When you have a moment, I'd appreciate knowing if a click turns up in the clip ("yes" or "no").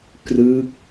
no